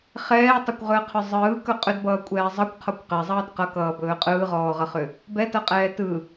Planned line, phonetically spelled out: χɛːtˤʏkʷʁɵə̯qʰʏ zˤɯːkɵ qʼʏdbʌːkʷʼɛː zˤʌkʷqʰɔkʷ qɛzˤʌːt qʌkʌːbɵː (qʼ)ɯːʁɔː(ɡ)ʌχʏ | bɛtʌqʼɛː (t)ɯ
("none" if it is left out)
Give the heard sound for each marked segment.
qʼ, ʁ, t

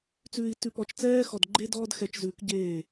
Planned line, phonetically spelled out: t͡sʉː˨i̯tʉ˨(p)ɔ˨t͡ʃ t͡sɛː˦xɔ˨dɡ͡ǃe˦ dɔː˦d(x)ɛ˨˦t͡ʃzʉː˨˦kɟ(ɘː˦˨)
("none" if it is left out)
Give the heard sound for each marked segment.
p, x, eː˦˨

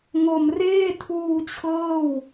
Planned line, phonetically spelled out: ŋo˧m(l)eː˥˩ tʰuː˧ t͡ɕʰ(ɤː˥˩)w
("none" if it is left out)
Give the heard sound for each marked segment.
r, ɤː˥˩

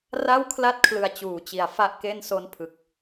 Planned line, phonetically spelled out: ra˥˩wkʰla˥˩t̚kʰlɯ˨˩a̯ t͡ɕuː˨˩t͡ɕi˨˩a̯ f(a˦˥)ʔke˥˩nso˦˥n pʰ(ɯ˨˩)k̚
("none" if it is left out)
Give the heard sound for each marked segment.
a˦˥, ɯ˨˩

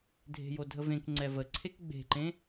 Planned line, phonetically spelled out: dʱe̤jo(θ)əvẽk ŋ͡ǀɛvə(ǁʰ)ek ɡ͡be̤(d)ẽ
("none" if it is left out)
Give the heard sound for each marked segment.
dʱ, ǀʰ, ǃ

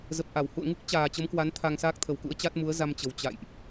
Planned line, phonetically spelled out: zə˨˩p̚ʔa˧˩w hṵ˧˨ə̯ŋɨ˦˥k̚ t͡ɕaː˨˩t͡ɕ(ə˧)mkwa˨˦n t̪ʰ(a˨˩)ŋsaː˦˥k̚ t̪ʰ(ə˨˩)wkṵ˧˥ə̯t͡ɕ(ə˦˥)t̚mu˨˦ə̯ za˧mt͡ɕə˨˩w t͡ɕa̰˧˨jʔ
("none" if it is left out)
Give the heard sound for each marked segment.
ə˨˦, a˧, ə˨˩, a˦˥

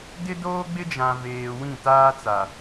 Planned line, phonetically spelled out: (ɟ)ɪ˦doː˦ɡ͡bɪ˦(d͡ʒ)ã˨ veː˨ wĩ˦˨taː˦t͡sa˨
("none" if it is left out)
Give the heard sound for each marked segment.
d, d͡ʒ

